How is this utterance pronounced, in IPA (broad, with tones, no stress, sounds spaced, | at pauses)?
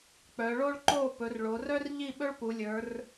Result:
k͡p œ˩˧ ɭ o˥ ɭ ǃ o˥˨ p ɵ˩˧ r ɭ o˩˧ r œ˥ r ʎ i˥˨ ɓ ɵ˥ ɭ p u˩˧ lʲ ə˞˩˧ r